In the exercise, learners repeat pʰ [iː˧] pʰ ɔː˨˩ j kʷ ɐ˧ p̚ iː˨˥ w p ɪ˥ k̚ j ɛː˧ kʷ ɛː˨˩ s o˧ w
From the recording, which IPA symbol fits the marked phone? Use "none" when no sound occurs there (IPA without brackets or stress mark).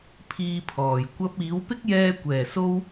iː˧